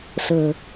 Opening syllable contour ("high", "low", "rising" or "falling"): low